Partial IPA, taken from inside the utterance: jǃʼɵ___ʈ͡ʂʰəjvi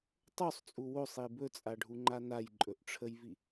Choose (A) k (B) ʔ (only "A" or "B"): B